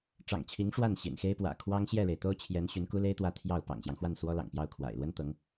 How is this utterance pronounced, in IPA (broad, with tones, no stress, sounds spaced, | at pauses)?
ʈ͡ʂ ɑ̰˨˩ ŋ t͡ɕʰ i˧˥ ŋ ʂ w a˥˩ n ɕ ḭ˨˩ n x e˥ ɪ̯ p w ä̰˨˩ kʰ w ɑ˥ ŋ ɕ j ɛ˥˩ ɻ e˩ ɪ̯ t̪ o˥ ʊ̯ t͡ɕʰ j ɛ˧˥ n ɕ y˧˥ n k u˥ l e˥ ɪ̯ t̪ w ä˥˧ t̪ʰ j ɑ˥˩ ʊ̯ p ɑ̰˨˩ ŋ ɕ j ɑ˦ ŋ x w a˥˩ n s w ɔ˥ l ɑ̰˨˩ ŋ p j ɑ˥˩ ʊ̯ kʰ w a̰˨˩ ɪ̯ l w ə˥ n t̪ ɤ˧˥ ŋ